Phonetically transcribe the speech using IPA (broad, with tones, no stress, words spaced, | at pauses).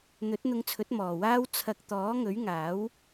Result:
n̪ɵ˨˥t̚n̪ʊ˧ŋt͡sʰɵ˨˥t̚ mɔː˨waː˥w t͡sʰɐ˧k̚ t̪ɔː˨˥ŋɵ˨˥ɥŋaː˨˥w